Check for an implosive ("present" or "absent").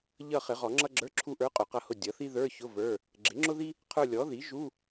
absent